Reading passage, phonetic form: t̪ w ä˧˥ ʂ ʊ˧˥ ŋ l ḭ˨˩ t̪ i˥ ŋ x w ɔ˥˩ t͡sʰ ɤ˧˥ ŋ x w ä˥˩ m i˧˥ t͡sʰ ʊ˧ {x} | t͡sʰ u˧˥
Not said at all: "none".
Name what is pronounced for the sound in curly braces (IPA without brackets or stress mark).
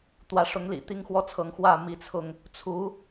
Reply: ŋ